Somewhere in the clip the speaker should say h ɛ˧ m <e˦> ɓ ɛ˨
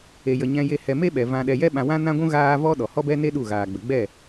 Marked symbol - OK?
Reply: yes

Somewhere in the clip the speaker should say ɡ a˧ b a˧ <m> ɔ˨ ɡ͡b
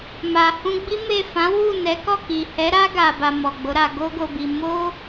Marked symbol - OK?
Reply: yes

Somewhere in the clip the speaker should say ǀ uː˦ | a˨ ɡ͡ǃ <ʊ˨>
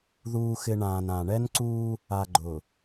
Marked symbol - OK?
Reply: yes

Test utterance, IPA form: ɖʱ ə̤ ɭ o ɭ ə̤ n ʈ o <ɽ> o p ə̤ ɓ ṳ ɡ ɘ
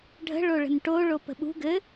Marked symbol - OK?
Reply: no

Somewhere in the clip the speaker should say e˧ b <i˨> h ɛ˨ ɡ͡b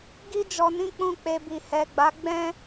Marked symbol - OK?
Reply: yes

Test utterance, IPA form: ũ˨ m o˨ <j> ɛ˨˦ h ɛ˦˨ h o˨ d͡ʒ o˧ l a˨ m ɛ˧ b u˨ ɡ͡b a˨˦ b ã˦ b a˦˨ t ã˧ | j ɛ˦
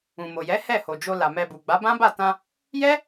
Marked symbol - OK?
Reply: yes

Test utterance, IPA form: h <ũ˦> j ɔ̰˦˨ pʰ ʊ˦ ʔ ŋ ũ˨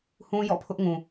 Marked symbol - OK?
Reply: yes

